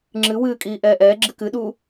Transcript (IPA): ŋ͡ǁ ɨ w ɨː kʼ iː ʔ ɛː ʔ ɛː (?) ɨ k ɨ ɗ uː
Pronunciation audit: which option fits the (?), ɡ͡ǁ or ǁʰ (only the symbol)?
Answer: ɡ͡ǁ